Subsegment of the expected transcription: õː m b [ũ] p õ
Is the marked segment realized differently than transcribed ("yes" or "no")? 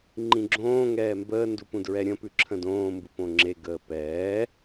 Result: yes